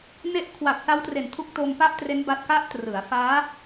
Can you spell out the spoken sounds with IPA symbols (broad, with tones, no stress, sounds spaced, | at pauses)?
n e˦˥ ʔ kʰ w a˨˩ k̚ s a˦˥ w t r e˨˩ n tʰ u˦˥ k̚ t o˧ m p a˥˩ ʔ t r e˦˥ n b a˥˩ t̚ k a˦˥ ʔ t r ɯ˩˦ a̯ f aː˦˥